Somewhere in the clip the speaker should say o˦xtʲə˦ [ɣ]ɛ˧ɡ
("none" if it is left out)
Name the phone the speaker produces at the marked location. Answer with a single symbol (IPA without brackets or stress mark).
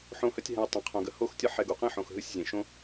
ħ